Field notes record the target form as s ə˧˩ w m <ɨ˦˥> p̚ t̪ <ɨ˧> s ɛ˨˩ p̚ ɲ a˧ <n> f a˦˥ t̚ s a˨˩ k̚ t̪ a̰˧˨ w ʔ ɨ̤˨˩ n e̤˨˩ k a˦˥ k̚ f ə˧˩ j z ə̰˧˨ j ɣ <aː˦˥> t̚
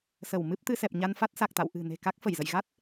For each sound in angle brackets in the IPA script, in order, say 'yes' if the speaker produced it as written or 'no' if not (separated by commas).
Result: yes, yes, yes, no